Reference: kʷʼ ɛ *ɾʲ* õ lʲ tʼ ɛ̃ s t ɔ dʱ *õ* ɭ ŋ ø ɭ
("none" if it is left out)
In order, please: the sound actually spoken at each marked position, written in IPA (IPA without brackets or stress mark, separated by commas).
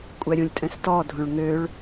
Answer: ɾʲ, õ